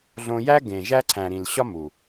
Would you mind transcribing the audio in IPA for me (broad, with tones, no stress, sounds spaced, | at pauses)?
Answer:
ɮ õ˦ j æ˦ ɡ ẽ˨ ʒ æ˦ ǀʰ æ̃˨ ɾ ĩ˨ l ɕ ɒ˦ m u˨